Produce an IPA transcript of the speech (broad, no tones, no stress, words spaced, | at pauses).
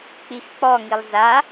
k͡pixk͡pɔŋilˠ za